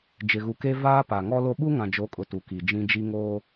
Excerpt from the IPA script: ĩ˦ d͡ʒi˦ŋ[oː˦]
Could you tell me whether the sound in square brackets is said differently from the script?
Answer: no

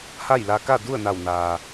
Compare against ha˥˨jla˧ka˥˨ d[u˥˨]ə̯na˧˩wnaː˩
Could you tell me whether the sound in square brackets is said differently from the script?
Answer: no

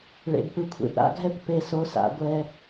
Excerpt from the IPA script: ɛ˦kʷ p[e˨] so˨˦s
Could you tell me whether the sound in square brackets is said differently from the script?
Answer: no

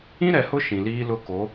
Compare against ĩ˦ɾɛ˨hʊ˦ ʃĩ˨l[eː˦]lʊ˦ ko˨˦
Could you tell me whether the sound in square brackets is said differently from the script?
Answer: yes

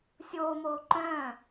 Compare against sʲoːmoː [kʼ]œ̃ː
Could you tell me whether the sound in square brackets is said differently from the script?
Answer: yes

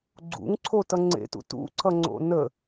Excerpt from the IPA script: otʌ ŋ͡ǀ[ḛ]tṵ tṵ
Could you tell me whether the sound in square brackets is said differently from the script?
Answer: no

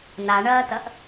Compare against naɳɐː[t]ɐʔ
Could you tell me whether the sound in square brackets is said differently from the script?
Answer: no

